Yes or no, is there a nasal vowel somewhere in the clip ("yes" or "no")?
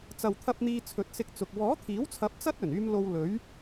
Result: no